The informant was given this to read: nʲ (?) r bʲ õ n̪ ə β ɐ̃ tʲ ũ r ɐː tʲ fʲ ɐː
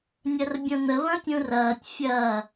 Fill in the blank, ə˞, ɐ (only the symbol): ɐ